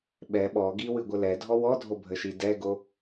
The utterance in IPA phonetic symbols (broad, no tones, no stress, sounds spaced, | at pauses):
ɓ ɛ ɓ ɔ ɡ i w ɨ ɡʷ ə l ɛ dʱ ɔ w ɔ dʱ o bʱ ə ʃ i d ɛ ɡ o